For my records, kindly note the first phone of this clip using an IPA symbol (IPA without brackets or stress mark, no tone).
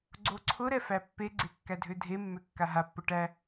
ɡ͡ǀ